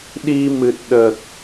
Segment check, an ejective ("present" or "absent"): absent